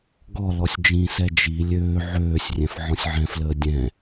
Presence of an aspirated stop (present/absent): absent